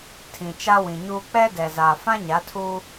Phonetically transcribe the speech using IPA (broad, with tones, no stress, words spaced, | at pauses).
tʰĩ˨t͡ʃa˦wĩ˨ɲuː˦ k͡pɛ˦dɛ˨ zaː˨fã˦ ɲa˨˦tʰuː˦